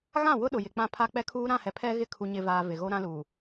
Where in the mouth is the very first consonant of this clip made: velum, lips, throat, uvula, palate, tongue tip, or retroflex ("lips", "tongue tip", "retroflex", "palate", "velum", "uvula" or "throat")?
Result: velum